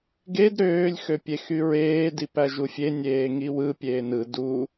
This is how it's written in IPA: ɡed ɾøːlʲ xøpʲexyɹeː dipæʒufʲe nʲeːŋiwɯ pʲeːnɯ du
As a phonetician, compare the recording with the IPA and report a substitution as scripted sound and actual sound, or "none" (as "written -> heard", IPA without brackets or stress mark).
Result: none